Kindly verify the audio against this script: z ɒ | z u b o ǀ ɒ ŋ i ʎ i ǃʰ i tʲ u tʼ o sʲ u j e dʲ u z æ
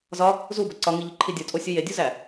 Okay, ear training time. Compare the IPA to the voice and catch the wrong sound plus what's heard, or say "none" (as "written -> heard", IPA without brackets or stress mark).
tʲ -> dʲ